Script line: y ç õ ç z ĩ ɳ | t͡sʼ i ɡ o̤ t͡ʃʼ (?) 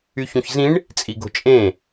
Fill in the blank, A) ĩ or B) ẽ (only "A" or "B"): B